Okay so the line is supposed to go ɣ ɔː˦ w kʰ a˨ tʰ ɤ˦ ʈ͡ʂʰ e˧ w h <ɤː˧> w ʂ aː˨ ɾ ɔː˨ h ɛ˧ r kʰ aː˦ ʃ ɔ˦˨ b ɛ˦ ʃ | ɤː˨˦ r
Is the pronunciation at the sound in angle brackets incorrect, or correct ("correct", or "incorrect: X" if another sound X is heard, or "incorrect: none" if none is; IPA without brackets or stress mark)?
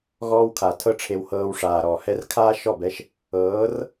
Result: correct